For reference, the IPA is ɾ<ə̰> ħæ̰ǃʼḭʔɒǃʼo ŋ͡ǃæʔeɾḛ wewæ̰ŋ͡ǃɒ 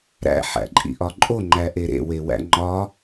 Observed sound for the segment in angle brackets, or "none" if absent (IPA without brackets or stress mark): æ̰